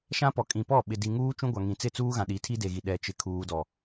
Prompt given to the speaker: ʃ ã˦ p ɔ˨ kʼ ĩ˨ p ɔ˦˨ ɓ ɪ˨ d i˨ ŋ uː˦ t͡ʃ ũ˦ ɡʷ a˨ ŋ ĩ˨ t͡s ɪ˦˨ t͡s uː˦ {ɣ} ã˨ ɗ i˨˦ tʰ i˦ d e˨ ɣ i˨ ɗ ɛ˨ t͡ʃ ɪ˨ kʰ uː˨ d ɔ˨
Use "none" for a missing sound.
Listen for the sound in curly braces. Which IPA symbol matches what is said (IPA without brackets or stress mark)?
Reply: ɣ